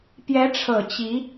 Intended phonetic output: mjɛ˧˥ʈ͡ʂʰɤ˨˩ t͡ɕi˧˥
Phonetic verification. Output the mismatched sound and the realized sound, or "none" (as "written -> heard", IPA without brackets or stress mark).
m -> p